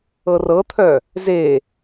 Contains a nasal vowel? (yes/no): no